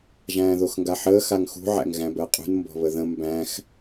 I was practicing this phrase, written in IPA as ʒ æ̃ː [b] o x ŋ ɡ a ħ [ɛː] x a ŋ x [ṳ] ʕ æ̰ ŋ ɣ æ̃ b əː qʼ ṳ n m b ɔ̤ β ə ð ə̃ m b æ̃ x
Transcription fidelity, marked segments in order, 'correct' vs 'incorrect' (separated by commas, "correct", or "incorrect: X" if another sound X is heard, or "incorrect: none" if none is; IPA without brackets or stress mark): incorrect: ð, incorrect: əː, correct